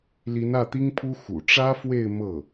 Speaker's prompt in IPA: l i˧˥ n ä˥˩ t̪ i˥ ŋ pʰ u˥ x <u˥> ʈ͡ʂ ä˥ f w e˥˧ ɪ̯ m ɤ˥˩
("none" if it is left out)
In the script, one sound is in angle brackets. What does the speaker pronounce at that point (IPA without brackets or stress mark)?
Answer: ṵ˨˩